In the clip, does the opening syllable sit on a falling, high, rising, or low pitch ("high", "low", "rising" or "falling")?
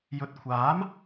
rising